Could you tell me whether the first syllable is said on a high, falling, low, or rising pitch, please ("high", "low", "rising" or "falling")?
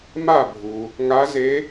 falling